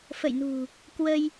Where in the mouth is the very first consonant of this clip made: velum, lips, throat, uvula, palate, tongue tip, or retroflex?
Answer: lips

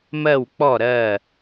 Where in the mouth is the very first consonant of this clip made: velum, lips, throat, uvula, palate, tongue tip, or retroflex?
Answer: lips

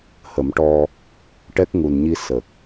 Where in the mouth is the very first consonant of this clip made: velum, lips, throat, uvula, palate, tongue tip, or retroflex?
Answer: throat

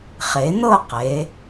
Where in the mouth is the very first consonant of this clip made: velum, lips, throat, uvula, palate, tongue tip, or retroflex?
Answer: uvula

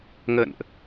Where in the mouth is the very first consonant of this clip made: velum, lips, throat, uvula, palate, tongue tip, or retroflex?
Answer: velum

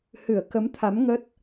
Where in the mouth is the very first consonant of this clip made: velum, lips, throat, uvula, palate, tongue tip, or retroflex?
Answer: throat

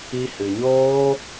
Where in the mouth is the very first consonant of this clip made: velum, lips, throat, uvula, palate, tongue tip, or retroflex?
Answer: throat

